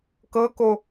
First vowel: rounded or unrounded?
unrounded